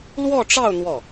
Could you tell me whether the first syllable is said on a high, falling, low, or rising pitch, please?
falling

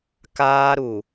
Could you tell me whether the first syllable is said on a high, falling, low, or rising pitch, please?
high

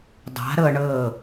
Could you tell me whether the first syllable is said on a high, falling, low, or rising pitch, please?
rising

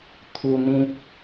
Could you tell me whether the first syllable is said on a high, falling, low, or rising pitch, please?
high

